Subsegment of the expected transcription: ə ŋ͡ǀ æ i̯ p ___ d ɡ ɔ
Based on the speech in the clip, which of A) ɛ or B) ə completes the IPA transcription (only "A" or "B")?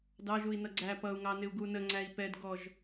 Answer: A